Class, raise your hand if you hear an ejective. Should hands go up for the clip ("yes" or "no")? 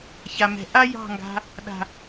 no